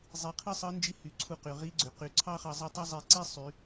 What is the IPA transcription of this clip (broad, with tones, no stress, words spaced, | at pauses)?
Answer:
zˤi˧ qʰɯ˥sˤɯ˧˥nd͡ʒi˧˥hy˩˧ ǀʰu˧ qy˩ʁi˧˥ɡ͡ǀø˩ qy˩˧ǀʰɑ˥χɑ˧ zˤɯ˧tˤɑ˥ zˤe˧ ǀi˥ sˤy˩˧